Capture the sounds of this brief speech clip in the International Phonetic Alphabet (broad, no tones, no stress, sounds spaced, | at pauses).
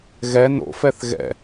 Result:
ɣ ɛ n o̰ f ɛ θ ɣ ɛ̰